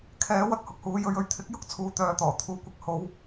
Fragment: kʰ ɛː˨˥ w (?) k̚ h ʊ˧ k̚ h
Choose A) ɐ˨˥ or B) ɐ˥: A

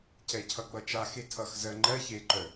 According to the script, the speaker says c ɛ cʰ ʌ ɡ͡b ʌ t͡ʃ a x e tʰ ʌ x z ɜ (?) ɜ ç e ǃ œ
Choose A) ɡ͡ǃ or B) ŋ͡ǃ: B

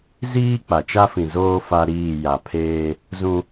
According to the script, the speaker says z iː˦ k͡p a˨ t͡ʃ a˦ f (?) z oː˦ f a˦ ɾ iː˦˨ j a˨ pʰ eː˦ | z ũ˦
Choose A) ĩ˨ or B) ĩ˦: A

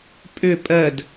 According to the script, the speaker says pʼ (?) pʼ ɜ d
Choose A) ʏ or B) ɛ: A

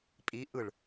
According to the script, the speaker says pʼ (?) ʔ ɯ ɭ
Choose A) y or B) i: B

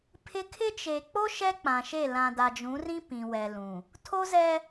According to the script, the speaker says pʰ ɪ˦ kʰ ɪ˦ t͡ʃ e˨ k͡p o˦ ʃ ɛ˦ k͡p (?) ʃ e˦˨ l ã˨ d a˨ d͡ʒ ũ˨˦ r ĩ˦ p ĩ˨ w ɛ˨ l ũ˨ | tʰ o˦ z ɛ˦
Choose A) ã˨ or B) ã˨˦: A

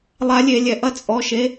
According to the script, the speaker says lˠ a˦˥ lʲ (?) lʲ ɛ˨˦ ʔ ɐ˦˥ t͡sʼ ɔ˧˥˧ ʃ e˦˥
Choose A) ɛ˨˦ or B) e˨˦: B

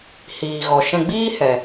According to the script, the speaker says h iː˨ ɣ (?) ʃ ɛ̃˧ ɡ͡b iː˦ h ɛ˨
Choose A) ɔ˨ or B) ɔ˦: A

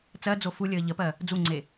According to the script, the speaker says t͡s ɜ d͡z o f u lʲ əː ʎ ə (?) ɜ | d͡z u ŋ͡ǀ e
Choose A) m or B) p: B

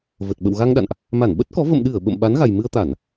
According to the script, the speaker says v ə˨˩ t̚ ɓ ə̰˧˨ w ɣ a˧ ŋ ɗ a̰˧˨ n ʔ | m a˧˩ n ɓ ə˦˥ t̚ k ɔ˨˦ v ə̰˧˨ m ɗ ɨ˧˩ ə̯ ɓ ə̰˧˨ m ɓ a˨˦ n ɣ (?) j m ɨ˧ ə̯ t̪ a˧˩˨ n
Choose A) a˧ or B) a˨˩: B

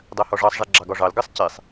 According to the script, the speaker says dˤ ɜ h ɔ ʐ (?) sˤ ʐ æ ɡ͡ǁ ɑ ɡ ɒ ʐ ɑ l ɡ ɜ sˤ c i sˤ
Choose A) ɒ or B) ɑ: B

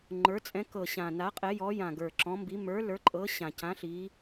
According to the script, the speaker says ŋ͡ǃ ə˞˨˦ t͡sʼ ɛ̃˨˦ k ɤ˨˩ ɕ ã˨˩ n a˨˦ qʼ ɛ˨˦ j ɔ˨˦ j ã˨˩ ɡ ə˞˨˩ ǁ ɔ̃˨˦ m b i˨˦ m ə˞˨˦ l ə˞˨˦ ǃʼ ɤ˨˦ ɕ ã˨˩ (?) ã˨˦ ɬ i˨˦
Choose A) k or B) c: B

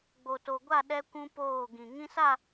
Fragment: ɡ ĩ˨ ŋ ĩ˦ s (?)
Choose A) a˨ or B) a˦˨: B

